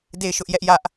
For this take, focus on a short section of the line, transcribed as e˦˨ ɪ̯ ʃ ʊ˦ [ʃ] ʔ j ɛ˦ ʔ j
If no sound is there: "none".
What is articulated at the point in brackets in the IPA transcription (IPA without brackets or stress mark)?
none